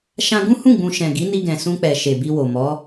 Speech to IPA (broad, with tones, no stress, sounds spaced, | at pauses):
ʃ ã˧ ɡ ũ˦ h ũ˦˨ ɡ͡b ũ˨ ʃ ɛ̃˨ ɡ i˨˦ n i˧ ɡ ɛ̃˨ s ũ˧ k͡p ɛ˨ ʃ e˨ b i˧ w o˨ m ɔ˨˦